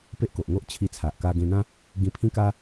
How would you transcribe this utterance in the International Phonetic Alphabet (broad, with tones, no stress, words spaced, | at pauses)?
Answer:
pe˦ʔko˨ʔŋo˦ʔ t͡ɕʰi˧t͡sʰa˨ʔ ka˧ɡẽ˧n̪ã˦ | ɡĩ˧pʰĩ˦ka˦